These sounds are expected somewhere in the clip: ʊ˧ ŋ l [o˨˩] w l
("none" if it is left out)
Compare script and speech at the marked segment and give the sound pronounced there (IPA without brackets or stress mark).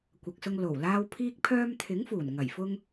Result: o˨˩